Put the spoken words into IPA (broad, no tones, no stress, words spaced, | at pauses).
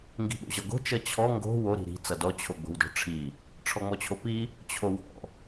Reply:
ŋɡi̤ɓo̰ʑʌɡo̤ t͡ʃʌt͡ɕʰɔ ŋɡo̤ wo ɾi̤ɾi̤ t͡sʌdɔ t͡ɕʰoɡ͡bo̤wdɔ̤ʈ͡ʂʰi | ʈ͡ʂʰɔŋ͡mɔt͡ɕʰopi | t͡ɕʰowɔ̰